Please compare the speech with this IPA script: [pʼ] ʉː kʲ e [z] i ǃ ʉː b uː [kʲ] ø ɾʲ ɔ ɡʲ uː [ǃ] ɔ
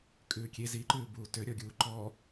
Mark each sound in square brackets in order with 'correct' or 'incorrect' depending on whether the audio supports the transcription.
incorrect: kʼ, correct, incorrect: t, correct

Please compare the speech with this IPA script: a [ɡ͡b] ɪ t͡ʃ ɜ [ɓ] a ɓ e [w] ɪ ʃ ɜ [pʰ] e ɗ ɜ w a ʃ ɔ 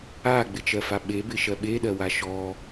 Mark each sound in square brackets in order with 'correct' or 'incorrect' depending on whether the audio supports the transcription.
correct, incorrect: f, incorrect: b, incorrect: ɓ

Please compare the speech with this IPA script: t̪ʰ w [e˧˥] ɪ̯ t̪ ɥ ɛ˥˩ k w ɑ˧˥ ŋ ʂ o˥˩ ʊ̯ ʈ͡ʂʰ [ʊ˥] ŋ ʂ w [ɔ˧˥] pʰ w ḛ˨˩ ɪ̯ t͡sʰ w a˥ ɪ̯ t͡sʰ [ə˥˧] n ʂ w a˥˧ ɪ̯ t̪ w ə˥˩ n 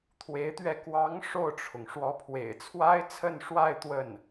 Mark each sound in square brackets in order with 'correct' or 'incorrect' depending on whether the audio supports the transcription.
correct, incorrect: ʊ˩, correct, correct

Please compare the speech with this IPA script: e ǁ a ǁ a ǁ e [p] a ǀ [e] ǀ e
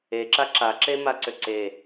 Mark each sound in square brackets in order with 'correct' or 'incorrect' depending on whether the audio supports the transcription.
incorrect: m, incorrect: ø

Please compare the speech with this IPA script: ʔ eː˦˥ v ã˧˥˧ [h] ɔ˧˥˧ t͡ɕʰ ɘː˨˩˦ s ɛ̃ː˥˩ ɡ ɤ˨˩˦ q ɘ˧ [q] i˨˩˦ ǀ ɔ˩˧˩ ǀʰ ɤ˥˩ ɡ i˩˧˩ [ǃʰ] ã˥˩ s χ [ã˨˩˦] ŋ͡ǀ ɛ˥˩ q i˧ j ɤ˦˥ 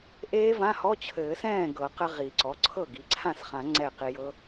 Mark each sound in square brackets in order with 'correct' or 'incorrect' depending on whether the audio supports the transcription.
correct, incorrect: ʁ, incorrect: ǀʰ, correct

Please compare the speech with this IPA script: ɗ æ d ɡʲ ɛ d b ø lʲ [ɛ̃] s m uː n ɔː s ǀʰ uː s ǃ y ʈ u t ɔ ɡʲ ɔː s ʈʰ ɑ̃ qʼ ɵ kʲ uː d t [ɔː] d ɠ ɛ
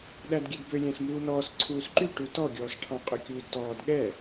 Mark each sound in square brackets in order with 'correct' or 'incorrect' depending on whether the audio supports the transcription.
correct, correct

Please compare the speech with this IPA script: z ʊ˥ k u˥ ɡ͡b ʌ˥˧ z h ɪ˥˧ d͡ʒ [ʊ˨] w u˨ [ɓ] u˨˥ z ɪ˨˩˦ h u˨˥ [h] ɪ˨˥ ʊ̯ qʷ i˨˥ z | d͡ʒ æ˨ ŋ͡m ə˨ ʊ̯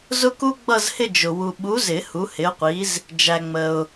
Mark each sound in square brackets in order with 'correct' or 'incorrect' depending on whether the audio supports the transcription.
correct, correct, correct

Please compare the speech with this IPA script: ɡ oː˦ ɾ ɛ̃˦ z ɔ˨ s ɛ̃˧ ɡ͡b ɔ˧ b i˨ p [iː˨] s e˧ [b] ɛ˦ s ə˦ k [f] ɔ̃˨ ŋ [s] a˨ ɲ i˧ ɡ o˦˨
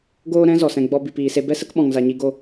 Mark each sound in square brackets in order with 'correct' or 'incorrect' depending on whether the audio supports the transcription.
correct, correct, incorrect: ɓ, incorrect: z

